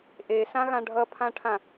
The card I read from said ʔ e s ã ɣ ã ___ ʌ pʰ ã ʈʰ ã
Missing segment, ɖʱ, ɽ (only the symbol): ɖʱ